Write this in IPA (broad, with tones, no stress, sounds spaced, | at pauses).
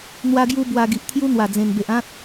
n̪ w a˧ ɡ j u˧ b w a˧ ɡ i˨ ʔ t̪ʰ j u˦ n̪ w a˨˩ d͡z ẽ˨˩ n b e˨ ʔ ã˦ t̚